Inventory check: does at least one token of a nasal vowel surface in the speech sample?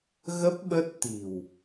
no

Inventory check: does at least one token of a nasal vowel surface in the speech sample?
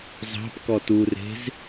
no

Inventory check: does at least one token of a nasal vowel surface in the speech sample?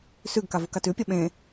yes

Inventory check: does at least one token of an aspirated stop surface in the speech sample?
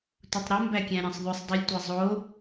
no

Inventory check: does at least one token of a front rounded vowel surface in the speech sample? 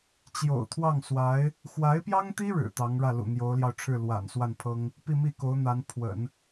no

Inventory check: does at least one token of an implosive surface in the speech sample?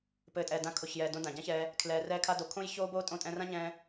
no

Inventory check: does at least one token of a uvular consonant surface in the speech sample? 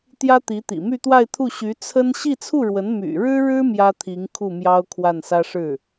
no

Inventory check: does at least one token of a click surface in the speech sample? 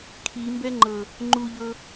yes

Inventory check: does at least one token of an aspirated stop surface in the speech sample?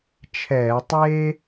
yes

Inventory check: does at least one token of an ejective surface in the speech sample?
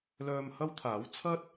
no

